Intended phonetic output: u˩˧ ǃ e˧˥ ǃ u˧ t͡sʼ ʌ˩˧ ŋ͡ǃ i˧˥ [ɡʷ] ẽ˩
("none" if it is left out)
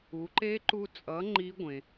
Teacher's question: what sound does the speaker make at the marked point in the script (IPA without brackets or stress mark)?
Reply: ɡʷ